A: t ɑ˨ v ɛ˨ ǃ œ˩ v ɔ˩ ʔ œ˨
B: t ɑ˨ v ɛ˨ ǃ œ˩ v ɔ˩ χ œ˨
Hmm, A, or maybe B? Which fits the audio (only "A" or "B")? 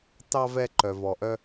A